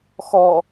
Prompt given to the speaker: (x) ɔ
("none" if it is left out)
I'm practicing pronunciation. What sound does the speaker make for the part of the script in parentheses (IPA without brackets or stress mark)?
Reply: x